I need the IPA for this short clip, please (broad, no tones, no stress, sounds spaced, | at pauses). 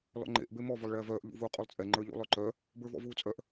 l ɔ̰ ŋ͡ǃ ḛ ʔ b e m ɔ v o lˠ ɭ ɛː v œː ʔ ʎ ṵ v uː qʼ u lˠ t͡sʼ ɛ ŋ͡ǃ ə˞ ʎ ṵ lˠ œ ǃ œ | b ə˞ v ɔ̰ v uː t͡sʼ œ ʔ